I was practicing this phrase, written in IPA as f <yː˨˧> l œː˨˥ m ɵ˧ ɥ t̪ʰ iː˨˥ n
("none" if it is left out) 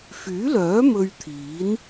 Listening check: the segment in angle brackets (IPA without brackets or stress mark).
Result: yː˨˥